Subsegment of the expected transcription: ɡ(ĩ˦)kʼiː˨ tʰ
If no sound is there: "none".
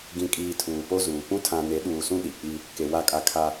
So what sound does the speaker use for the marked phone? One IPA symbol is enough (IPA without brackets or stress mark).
ĩ˨